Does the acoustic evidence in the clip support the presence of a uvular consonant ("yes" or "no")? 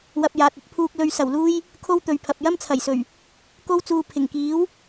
no